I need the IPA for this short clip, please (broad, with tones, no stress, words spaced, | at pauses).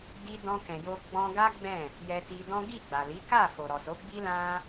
di˧ dɔ̃˧kɛ̃˨jo˧ ɡ͡bɔ̃˧ɡa˦ ɡ͡bɛ̃˦˨ | jɛ˧ti˧dɔ̃˦ ɡi˦˨ɡ͡ba˨li˨˦ka˦˨ fo˨ɾɔ˨so˨˦ɡ͡bi˦ lã˦